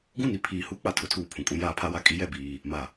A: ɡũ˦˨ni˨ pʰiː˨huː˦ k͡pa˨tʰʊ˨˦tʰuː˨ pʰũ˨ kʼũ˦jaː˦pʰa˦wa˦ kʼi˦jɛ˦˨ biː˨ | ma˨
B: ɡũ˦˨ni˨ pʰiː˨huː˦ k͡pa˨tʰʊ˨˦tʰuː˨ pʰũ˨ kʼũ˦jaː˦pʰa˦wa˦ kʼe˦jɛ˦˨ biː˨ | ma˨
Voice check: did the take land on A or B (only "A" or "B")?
A